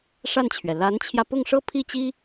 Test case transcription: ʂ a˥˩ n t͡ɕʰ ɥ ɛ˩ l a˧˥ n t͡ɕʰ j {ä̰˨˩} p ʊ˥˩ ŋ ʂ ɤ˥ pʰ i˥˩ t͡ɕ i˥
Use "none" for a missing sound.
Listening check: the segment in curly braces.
ä˧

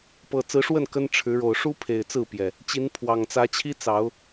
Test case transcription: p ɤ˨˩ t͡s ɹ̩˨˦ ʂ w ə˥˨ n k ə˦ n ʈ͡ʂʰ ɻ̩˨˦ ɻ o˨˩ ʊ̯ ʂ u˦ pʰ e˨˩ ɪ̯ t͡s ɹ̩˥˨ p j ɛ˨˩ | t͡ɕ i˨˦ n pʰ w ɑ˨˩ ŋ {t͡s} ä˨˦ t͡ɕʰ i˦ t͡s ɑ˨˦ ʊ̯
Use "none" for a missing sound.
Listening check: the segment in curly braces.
t͡s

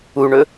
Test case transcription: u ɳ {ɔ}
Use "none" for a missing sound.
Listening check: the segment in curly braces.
ɵ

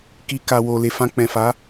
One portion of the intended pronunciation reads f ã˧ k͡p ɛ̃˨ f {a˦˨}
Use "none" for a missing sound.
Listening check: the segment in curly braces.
a˨˦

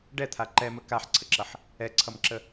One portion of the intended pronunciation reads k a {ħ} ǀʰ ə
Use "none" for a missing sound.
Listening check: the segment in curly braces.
ħ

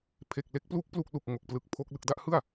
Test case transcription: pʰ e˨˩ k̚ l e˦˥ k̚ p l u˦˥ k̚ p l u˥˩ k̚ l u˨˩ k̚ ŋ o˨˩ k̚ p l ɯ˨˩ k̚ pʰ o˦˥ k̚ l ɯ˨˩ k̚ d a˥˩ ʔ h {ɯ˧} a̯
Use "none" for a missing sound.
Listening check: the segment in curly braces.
ɯ˥˩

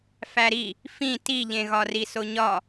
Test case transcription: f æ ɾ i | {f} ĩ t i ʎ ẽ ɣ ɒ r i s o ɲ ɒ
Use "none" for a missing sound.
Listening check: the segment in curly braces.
f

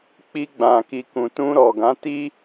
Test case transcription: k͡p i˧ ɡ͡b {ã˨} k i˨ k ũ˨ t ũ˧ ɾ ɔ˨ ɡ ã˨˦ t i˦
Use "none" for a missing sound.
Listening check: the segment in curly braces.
ã˨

